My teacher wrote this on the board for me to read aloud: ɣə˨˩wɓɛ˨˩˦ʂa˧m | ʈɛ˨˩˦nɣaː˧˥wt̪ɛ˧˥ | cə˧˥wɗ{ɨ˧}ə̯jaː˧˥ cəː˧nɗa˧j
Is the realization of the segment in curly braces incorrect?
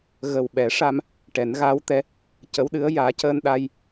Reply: yes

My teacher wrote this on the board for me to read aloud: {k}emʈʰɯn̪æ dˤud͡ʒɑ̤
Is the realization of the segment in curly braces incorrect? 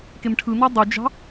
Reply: no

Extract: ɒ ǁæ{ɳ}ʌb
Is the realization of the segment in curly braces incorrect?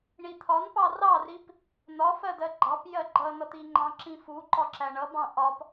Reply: no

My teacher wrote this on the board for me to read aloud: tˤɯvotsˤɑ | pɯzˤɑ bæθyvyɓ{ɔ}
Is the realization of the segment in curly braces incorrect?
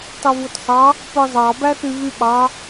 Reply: yes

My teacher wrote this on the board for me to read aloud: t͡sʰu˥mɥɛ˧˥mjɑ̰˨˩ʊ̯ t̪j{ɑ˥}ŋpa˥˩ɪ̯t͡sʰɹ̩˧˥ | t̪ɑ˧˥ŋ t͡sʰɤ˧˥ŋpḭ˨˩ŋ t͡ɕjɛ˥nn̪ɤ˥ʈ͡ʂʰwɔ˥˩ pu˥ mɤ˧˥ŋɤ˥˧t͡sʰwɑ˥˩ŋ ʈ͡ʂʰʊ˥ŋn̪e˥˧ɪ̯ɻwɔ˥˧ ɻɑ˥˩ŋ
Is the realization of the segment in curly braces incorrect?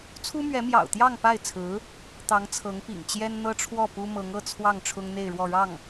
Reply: yes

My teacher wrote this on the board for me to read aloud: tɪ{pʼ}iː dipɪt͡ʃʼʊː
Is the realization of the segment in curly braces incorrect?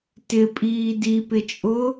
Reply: no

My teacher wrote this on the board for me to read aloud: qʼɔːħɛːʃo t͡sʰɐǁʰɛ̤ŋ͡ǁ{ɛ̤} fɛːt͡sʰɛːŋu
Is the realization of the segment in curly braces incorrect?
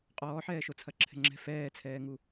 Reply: no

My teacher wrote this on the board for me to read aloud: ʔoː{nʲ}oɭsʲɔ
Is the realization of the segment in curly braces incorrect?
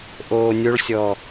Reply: no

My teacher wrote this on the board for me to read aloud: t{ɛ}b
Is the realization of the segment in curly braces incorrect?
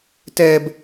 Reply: no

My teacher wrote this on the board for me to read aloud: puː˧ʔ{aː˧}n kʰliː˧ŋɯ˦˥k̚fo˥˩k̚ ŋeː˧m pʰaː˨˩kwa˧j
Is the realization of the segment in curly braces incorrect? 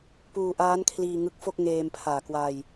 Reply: yes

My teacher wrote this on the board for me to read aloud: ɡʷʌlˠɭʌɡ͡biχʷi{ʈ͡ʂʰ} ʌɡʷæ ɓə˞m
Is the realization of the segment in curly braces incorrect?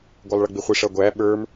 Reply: yes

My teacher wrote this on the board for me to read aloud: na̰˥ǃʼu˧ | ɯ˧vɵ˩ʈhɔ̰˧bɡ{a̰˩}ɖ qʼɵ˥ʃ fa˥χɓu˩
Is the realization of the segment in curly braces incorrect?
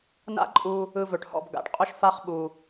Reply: no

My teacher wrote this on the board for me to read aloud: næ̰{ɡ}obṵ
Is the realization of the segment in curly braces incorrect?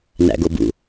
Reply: no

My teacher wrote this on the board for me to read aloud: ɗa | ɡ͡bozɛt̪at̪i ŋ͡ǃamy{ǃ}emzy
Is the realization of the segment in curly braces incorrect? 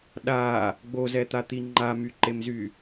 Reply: no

